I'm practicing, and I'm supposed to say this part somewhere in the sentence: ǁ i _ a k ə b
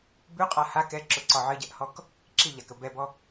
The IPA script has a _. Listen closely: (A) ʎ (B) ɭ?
A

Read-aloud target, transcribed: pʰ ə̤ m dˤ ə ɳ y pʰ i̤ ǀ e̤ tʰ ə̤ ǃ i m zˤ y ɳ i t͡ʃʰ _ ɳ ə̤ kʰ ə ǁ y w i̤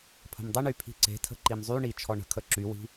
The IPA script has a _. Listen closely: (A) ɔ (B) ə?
A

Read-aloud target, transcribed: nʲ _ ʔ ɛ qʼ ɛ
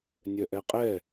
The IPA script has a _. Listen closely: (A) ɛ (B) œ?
B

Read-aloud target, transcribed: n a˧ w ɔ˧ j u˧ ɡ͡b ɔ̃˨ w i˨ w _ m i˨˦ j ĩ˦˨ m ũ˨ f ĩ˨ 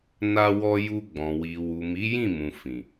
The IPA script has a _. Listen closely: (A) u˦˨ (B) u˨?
B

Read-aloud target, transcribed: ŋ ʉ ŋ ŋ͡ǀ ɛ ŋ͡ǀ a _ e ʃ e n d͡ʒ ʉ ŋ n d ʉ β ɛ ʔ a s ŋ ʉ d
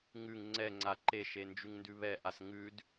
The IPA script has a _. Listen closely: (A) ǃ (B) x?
A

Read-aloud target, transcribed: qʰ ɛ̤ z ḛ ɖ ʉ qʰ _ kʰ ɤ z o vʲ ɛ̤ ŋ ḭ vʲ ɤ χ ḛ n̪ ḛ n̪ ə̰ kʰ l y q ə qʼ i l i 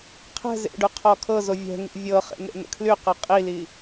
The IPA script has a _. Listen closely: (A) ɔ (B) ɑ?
A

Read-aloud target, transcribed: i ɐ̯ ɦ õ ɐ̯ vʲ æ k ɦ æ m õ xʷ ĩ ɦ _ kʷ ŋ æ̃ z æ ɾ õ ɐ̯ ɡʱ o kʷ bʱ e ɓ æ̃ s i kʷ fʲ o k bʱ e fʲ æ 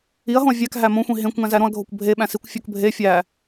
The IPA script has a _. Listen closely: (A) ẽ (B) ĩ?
A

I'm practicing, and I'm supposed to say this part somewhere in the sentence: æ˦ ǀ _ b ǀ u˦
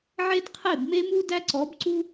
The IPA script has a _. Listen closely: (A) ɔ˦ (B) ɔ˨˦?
B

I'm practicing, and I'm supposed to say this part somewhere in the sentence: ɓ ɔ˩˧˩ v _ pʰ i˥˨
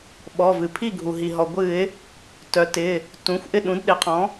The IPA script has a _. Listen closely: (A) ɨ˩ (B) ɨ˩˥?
A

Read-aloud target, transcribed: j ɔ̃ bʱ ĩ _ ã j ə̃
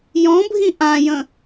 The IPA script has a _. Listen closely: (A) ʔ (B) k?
A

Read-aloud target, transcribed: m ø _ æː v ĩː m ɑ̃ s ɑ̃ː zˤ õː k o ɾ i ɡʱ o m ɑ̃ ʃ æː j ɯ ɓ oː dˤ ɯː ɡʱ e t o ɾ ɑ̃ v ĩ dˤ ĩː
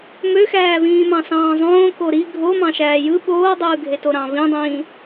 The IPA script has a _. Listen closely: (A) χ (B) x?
B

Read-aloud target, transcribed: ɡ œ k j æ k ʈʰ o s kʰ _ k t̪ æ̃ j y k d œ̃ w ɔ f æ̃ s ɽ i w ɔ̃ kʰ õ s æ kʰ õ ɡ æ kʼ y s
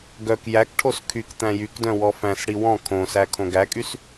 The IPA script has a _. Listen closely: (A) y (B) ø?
A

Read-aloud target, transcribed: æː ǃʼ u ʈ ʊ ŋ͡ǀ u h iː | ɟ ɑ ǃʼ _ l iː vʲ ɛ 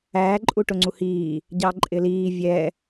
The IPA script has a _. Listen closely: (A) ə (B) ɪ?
B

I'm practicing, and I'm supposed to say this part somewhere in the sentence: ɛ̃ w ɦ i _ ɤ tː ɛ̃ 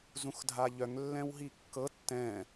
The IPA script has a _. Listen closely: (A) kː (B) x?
A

